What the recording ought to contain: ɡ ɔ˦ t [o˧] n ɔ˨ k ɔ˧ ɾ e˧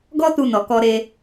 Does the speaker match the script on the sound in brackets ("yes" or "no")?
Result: no